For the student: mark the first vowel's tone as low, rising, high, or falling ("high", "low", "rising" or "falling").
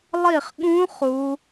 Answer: falling